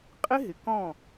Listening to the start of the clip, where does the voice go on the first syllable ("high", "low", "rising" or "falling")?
high